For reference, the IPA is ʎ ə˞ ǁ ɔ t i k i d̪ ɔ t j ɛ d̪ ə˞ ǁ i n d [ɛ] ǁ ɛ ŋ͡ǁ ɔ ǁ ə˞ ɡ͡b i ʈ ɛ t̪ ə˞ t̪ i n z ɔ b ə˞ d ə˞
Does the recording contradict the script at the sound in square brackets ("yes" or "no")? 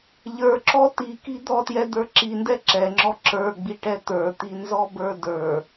no